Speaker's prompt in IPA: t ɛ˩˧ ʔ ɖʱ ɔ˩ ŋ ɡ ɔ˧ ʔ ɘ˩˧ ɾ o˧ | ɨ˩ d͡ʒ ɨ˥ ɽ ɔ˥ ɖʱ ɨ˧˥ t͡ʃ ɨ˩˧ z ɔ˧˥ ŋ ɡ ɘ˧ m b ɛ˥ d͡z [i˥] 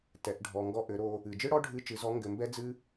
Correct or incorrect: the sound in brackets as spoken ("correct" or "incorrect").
incorrect